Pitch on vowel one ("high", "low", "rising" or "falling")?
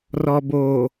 low